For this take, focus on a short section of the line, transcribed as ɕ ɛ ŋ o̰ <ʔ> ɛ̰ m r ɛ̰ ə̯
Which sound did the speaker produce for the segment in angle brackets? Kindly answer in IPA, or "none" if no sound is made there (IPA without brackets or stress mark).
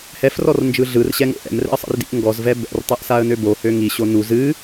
ʔ